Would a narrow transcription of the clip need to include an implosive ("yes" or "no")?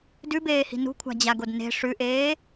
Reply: no